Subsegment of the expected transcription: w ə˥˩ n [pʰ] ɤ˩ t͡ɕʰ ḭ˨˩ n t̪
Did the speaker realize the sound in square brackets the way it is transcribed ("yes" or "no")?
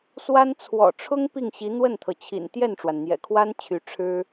no